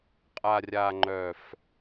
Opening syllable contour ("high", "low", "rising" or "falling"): low